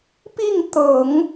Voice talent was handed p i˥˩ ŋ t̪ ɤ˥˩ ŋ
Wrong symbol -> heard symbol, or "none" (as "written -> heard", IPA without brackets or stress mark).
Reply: ɤ˥˩ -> ɤ˨˩˦